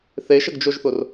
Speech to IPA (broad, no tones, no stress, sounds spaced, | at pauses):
θ e ʃ ə ɡ d͡ʒ o ʒ θ ʊ r